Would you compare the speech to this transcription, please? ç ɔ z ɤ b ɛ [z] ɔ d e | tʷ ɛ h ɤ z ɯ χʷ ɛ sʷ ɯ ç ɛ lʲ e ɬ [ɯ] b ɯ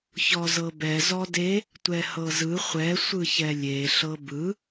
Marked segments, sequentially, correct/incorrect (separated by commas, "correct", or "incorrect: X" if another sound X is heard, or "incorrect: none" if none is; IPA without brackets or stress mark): correct, incorrect: ɤ